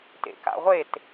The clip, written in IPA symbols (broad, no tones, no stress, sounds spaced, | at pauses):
t ḛ k a̰ ʁʷ e t